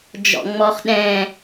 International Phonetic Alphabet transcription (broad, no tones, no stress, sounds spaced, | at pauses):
d͡ʒ ɔ̰ ŋ͡m ɔ χ ɗ ɛ̃